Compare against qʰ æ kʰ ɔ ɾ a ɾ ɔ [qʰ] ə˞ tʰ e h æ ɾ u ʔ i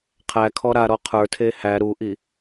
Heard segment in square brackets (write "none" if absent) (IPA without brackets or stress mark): qʰ